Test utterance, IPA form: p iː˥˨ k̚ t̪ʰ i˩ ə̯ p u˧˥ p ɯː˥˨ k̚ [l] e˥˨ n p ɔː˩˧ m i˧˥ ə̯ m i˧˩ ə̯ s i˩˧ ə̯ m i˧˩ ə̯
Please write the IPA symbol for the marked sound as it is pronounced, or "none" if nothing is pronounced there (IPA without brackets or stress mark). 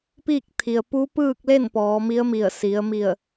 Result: l